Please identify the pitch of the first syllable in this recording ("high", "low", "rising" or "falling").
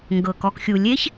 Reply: low